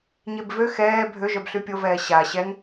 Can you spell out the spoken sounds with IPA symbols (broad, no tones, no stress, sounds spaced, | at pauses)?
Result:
ɲ e b v ø x ɛː bʱ ø ʒ œ b ɬ y pʲ o v ɛː ɕ a ɕ ɛ ŋ